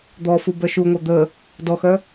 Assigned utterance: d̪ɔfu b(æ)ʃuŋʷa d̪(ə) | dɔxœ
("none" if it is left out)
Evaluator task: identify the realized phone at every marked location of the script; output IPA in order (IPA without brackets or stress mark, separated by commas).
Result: œ, ə